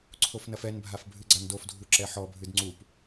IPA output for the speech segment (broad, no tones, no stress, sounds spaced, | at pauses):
ǀʰ o f n ɐ f ɛ n bʱ a f bʱ ɨ ɡ͡ǀ a n d o f dʱ u ǁ ɛ ħ ɔ bʱ ɨ d ŋ͡ǀ u p